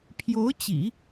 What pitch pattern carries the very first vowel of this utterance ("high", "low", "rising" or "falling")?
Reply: rising